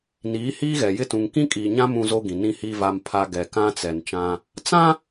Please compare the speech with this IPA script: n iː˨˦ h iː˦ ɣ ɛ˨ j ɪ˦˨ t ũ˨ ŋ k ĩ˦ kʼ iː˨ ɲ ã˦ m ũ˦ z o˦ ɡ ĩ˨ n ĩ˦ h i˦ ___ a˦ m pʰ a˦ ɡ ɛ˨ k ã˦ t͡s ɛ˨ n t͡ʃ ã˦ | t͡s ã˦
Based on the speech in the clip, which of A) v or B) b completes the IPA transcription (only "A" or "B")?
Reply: A